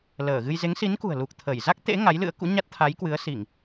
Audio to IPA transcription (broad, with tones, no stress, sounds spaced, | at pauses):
l əː˧˩ ɣ ɨ˧ j z e˨˦ ŋ s i˨˦ n k ṳ˨˩ ə̯ l u˨˩ k̚ t̪ʰ ə˧˩ j z a˦˥ k̚ t̪ ḛ˧˥ ŋ a˨˦ j l ɨ̰˧˥ ə̯ k ṵ˧˥ ɲ a˦˥ t̚ t̪ʰ a˨˦ j k w ɨ˨˦ ə̯ s i˧˩˨ ŋ